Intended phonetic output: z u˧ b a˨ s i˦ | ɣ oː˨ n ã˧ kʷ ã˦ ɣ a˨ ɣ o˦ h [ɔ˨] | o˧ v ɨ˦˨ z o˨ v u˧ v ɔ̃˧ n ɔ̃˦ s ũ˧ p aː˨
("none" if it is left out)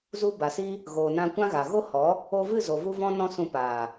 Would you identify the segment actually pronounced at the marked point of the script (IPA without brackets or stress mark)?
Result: ɔ˨˦